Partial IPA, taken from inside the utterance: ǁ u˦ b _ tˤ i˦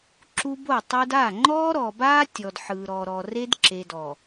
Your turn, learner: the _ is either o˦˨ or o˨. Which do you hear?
o˦˨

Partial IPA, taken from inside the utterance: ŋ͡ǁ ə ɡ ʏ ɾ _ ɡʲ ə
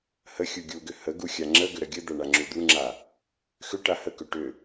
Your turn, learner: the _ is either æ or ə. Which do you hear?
ə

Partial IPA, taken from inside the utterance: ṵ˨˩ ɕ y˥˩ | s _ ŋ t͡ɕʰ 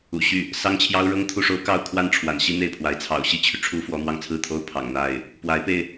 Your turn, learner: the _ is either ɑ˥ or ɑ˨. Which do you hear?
ɑ˥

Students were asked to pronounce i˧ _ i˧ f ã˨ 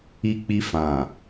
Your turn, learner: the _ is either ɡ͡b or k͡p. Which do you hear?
k͡p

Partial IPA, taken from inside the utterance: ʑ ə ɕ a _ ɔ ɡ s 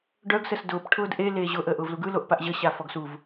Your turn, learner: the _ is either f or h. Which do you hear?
f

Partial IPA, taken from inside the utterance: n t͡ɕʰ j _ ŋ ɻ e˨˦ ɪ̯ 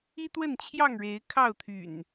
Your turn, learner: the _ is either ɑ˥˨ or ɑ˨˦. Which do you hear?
ɑ˥˨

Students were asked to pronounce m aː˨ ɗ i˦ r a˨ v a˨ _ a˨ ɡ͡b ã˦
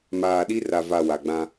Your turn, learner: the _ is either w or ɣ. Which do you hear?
w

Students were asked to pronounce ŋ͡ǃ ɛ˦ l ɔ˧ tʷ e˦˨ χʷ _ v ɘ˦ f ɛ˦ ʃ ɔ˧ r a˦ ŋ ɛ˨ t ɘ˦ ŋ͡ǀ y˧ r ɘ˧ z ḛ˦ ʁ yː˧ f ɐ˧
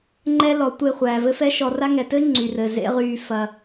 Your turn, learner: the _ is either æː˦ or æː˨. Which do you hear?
æː˨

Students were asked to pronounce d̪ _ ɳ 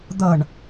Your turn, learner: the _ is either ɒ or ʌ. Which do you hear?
ʌ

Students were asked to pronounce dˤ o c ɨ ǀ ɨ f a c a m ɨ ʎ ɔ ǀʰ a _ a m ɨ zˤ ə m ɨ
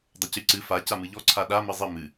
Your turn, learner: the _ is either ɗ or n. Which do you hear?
ɗ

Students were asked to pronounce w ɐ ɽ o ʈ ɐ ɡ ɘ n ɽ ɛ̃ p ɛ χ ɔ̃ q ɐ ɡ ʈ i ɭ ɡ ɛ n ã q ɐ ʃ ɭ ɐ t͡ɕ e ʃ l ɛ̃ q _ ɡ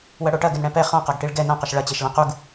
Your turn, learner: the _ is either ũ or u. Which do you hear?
u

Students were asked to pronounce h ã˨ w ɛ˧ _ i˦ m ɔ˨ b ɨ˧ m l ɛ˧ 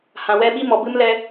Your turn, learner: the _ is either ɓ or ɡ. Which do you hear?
ɓ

